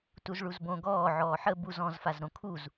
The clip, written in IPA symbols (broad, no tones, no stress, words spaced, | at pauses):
tuzɭuzbõ ɡɔː ʕɔːħə buz ɔ̃zfazɾõ kʰuz